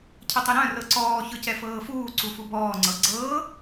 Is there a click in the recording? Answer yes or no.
yes